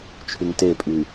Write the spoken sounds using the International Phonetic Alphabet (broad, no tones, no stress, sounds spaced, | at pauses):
t͡ʃʰ y ŋ t e pʼ yː